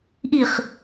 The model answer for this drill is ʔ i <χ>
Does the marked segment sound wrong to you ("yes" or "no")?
no